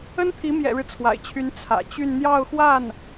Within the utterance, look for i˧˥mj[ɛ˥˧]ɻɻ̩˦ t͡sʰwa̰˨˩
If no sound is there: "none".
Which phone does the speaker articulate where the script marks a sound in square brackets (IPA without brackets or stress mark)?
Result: ɛ̰˨˩